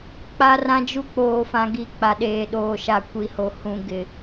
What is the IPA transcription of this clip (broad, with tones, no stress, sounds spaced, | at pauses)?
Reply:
k͡p a˦ r ã˦ d͡ʒ u˦ k͡p oː˨ f ã˨ ɡ i˨ k͡p a˨ ɗ eː˨ ɗ oː˨ ʃ a˨ kʷ i˨ h o˨ h ũ˨ ɡ ɪ˨